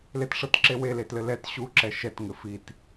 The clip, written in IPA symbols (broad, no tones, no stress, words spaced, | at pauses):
letʂɤtǁewe letlɘlɛt ɕu ǁɛʃɛt ŋɘfit